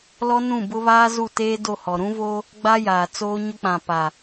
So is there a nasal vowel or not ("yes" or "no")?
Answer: yes